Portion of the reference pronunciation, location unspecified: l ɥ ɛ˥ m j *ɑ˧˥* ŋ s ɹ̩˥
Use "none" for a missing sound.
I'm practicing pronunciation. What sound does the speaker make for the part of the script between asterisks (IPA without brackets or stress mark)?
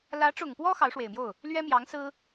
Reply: ɑ˧˥